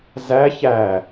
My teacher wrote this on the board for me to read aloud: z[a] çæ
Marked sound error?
yes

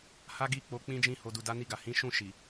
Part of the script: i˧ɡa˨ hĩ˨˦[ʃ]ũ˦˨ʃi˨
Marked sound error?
no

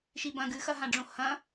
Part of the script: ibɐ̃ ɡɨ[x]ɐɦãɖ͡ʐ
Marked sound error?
no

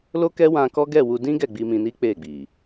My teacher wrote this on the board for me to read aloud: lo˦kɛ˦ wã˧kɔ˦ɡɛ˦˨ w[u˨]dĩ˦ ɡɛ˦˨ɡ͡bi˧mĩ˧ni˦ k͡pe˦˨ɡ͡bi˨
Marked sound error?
yes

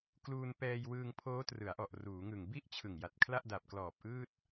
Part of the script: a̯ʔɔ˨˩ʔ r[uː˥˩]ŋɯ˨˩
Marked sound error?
yes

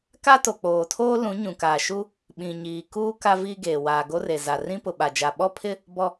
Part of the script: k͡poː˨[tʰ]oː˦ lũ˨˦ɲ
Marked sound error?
no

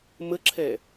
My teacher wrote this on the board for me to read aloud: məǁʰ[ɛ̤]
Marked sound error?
yes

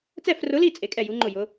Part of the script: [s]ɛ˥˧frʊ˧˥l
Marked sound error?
yes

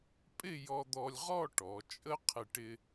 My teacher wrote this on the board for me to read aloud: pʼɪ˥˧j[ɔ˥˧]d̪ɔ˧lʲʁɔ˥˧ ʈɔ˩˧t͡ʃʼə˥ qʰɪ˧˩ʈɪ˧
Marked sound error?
yes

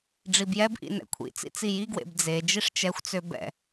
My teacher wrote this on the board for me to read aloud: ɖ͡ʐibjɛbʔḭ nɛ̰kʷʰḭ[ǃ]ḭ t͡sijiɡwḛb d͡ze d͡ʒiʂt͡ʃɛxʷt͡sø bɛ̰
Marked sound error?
yes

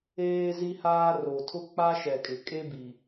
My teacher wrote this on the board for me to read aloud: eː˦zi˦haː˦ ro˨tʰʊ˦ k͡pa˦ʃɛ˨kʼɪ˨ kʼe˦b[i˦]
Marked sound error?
yes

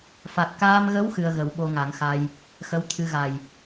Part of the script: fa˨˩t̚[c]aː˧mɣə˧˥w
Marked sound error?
yes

